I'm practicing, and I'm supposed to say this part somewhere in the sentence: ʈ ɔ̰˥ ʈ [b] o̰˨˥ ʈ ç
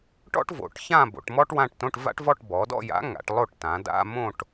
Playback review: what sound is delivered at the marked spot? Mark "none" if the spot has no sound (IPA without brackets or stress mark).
v